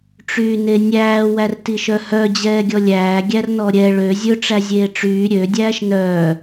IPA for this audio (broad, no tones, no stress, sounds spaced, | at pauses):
ʈ͡ʂ yː n e nʲ æː w æ r t i ʃ œ h œ d͡ʑ ɛː ɡʲ ɔ lʲ æː ɡʲ æ r n ɔ ɾʲ ɛ ɭ ø zʲ ɵ ʈ͡ʂ æ zʲ eː ʈ͡ʂ yː ɾʲ ø dʲ æː ʃ n œː